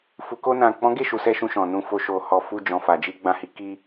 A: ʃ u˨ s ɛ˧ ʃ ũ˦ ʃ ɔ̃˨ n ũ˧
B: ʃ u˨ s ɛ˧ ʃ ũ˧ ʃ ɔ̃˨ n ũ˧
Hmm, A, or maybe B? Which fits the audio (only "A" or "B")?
B